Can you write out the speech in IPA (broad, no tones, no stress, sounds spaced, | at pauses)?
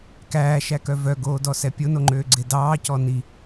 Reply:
k æː ʃ æ k œ v œ ɡ oː d ɔ s ɛ pʲ o n o ŋ͡ǃ øː ɡ͡ǀ e d ɑː c ɔ n i